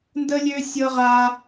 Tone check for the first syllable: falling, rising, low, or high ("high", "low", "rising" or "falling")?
high